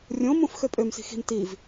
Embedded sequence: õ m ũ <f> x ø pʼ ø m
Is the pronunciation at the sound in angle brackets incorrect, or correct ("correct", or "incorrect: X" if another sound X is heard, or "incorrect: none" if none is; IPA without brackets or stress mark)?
correct